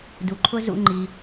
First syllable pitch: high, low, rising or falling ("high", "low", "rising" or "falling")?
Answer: low